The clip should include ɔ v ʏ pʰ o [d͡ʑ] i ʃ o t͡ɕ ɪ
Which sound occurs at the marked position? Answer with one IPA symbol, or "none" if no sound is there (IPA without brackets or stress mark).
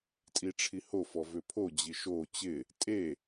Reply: d͡ʑ